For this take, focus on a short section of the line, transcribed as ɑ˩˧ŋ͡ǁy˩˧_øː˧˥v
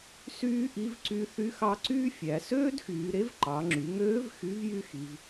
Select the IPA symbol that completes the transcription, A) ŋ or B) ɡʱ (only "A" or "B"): A